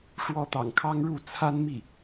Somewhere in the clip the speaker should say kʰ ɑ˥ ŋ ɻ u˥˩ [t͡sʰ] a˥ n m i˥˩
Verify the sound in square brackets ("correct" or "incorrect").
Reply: correct